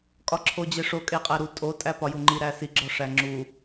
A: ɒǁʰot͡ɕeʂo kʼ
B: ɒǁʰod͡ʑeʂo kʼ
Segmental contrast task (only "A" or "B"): B